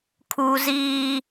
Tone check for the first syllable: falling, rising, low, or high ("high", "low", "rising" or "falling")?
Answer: high